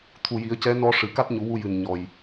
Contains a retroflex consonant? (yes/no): yes